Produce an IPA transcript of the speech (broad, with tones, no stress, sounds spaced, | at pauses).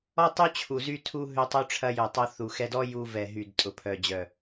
ɔ˥ tˤ y˥ t͡ɕʰ u˨˩ z y˧ tʰ u˧ ɦ ø˧ tˤ y˧ ʈ͡ʂʰ ɐ˧ j œ˨˩ tˤ o˧ θ u˨˩ x ɛ˧ d ɔ˥ j u˧ v ɛ˨˩ ɦ y˨˩ d tʼ ʊ˨˩ pʰ œ˨˩ d͡ʑ œ˨˩